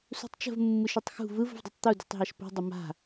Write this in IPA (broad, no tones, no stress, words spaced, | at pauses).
sṳtˤt͡ʃə̤v mːɯʃɯtˤxṳ vɯv ə̤vdˤɯtˤt̪u dṳtˤɦaʃpṳ dˤəma̤